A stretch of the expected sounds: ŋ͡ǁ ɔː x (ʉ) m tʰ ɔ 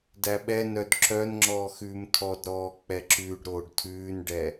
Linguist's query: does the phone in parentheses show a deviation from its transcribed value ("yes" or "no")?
yes